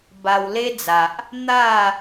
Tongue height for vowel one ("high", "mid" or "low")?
low